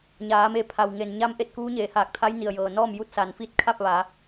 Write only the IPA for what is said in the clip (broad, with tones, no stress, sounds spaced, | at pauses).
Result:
ɲ aː˩˧ m e˧˩ pʰ a˩ w ŋ e˩ n ɲ a˧˥ m ʔ e˧ t̚ k uː˧˥ ɲ eː˩˧ h aː˧˩ k̚ t̪ʰ a˧˥ j n i˩ ə̯ j ɤː˩ n ɔː˥˨ m j u˥˨ t̚ s a˩˧ n f i˥˨ t̚ kʰ a˥˨ p̚ ʋ a˩˧